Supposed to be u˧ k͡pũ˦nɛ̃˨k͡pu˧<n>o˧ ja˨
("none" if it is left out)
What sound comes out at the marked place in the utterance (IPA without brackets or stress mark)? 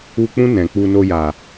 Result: n